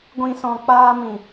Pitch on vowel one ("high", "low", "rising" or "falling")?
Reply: low